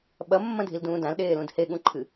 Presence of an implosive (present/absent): present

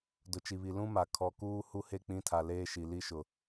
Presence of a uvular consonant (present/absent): absent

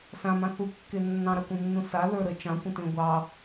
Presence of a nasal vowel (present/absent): present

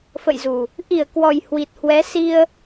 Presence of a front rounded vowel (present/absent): absent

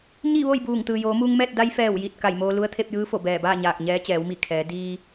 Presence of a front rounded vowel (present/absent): absent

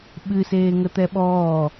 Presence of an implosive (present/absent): present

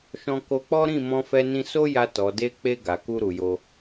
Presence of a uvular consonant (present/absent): absent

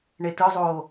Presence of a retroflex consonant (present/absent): present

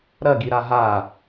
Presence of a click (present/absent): absent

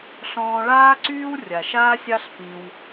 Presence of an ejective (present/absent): absent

